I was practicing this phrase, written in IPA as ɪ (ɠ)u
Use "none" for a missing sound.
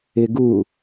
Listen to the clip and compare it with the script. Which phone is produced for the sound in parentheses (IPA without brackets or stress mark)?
ɡ